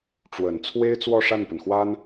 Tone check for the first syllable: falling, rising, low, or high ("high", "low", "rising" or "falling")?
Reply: low